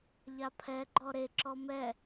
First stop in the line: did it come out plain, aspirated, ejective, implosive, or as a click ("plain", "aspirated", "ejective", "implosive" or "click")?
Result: aspirated